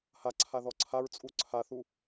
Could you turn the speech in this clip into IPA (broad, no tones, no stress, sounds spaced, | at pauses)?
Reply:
h a ǀʰ a ð ɔ ǀʰ a ɹ t͡sʼ u ǀʰ a θ u